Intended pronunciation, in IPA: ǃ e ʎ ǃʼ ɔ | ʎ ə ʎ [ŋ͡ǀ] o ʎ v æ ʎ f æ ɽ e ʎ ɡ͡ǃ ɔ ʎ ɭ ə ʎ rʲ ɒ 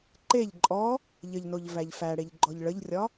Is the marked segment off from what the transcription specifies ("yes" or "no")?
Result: yes